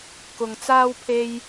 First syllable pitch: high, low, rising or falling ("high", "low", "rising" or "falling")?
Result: low